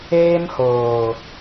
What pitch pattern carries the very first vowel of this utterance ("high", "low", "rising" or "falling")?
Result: high